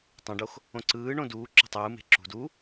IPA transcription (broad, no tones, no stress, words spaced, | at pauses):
tˤõɖox | õǀɯːɳõ duː ǁo̤tˤɯːme̤ ǁṳd u